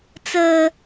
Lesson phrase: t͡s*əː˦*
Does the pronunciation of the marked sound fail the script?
no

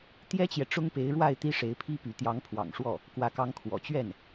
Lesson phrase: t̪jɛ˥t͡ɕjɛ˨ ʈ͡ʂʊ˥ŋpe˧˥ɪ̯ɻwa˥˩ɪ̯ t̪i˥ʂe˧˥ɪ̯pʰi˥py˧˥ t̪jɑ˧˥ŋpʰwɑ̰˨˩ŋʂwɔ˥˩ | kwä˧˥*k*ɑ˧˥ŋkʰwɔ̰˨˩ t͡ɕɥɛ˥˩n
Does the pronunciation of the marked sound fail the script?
no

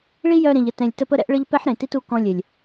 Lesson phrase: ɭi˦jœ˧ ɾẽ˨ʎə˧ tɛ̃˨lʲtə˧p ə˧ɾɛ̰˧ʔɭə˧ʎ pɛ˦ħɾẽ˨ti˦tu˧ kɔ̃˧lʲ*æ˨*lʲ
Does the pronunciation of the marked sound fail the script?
yes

